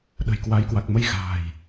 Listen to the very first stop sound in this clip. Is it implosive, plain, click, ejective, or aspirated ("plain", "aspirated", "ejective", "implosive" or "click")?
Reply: implosive